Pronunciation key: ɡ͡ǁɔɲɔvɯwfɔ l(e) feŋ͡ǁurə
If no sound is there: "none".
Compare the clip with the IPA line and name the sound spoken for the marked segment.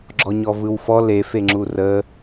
e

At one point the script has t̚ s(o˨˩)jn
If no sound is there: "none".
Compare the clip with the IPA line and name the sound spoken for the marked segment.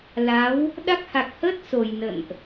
o˨˩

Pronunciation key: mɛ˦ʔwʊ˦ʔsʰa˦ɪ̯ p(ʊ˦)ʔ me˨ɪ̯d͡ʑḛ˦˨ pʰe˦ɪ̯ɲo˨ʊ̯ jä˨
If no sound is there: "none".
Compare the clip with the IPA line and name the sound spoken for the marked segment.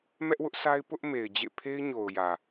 ʊ˦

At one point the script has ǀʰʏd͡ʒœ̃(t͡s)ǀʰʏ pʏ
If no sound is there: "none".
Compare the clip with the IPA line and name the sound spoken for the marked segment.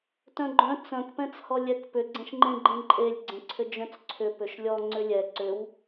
t͡s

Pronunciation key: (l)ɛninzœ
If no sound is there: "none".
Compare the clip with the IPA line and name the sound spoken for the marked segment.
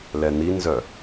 l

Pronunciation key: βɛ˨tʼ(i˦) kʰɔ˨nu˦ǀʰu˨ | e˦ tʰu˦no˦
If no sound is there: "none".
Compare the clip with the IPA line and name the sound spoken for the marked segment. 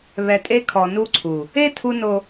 e˦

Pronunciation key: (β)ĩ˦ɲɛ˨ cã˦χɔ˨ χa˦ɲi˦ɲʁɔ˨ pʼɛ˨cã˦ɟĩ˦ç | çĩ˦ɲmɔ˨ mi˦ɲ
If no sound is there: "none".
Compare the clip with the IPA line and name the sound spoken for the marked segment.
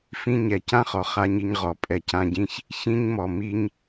f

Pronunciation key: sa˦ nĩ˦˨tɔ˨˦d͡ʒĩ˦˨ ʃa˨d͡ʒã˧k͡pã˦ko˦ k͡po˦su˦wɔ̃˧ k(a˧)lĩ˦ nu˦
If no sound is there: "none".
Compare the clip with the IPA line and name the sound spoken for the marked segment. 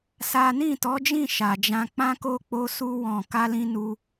a˦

